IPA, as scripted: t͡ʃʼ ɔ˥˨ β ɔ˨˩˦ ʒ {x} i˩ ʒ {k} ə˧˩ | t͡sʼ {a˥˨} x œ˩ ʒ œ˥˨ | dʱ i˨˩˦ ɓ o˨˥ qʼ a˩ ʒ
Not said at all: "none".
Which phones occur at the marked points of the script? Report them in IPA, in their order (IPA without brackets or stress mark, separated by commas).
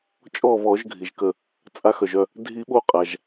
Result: ɡʱ, k, a˨˥